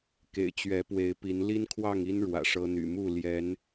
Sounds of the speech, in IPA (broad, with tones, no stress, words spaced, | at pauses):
kḛ˨˩ɪ̯t͡ɕɥɛ˨˦pwe˨˦ɪ̯pi˨˦n li˦nkʰwɑ˥˨ŋi˦n ɻwä̰˨˩ʂɤ˦n̪y̰˨˩ mu˥˨ ljɛ˨˦n